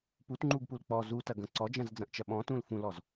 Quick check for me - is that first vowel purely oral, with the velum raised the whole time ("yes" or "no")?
yes